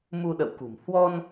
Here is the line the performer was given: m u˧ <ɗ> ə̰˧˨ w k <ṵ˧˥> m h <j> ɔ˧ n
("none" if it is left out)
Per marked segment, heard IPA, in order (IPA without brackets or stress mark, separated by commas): ɗ, ṳ˨˩, w